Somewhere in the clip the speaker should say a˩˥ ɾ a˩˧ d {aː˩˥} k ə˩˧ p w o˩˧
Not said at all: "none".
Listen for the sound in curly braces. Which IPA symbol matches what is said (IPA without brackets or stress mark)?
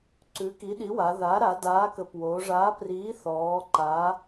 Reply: aː˩˥